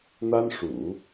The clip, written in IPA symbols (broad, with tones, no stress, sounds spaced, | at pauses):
n̪ a˥ n ʂ ṵ˨˩˦